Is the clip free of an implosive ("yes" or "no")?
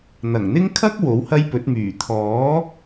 yes